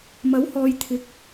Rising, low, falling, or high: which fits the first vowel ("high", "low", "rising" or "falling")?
rising